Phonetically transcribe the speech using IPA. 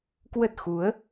k w ə˦˥ t̚ x u˨˦ ə̯

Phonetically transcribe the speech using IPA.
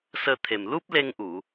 s əː˧ t̪ʰ e˨˩ m l u˦˥ p̚ l e˧ ŋ ʔ u˨˩˨

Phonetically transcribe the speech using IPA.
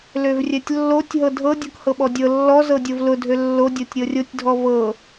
l ø v rʲ ɛ tʲ lː o tʲ ɦ ɤ dʱ ɤ dʲ ɤ k h ɤ ɓ ɔ dʲ ɤ lː ɔ z ɤ dʲ o v l ʊ dʱ ø lː o dʲ o tʲ ɾʲ ɤ rʲ o tʲ dʱ ɔ v ɤ

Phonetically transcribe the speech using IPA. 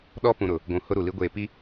ɗ ɔ˦ p ũ˨ ɾ ʊ˨ | ɡʷ ũ˨ h ʊ˦ ɾ u˨ l i˦ ɡʷ eː˦˨ p i˦

